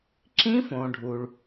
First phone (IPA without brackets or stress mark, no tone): ǁ